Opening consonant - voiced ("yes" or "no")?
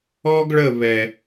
yes